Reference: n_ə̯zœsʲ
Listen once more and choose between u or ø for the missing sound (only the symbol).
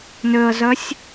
ø